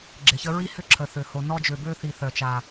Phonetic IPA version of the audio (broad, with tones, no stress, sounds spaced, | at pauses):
ɡ͡ǁ ɪ˨ ç ə˦ ɹ i˦ h ʏ˦˨ ǁʰ ə˨ θ ø˨ h o˨ n ɔ˦ d͡ʒ ø˨ b ø˦ θ i˨ θ œ˨ t͡ʃ a˨